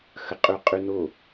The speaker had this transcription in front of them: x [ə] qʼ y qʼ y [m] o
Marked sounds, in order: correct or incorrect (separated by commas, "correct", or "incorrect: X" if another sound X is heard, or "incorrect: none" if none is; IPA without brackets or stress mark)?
correct, incorrect: n